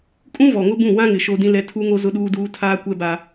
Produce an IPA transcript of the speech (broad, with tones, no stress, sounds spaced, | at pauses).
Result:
kʼ ũ˦ v ɔ˨ ŋ ʊ˦ b ũ˦˨ w ã˦ ŋ ɪ˨ ʃ o˦ d ĩ˦ l ɛ˦ tʰ u˦ ŋ o˦ z ʊ˦ ɗ uː˦ d uː˦ tʰ aː˦ kʷ ɛ˦ b a˦